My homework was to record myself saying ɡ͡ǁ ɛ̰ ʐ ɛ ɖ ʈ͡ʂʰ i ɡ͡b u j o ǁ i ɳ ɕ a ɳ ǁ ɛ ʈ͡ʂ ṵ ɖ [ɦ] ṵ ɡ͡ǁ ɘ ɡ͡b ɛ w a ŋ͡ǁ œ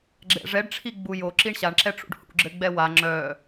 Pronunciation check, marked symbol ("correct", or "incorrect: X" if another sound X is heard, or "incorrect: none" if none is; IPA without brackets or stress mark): incorrect: h